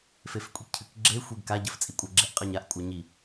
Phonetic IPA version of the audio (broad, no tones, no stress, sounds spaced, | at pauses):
f e f kʷʼ i k cʰ ɨ k ɡ͡ǁ e xʷ e ɡ k a ɟ ɜ f t͡sʼ i kʷʼ ɜ ɡ͡ǁ e ʔ qʼ ɜ ɲ a ʔ kʷʼ a ɲ i